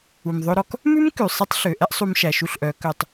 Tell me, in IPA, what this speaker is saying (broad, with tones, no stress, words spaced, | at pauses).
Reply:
u˩mðˤɵ˧ɾɔ˧k | mʉ˥m kʉ˩sˤi˧˥tˤɬø˩˧ ʔɛ˥ʔsˤu˧m ʃæ˩ʃu˧ɬʔœ˩˧ kœ˩tˤ